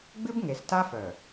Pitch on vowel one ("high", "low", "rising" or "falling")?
high